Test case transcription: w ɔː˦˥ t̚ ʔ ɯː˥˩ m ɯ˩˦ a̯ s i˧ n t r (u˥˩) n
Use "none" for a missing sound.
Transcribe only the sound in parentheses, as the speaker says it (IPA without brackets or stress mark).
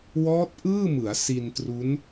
u˦˥